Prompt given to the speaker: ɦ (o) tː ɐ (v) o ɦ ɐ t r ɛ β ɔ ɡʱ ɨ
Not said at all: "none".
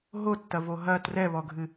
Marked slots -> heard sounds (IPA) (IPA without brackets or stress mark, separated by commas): o, v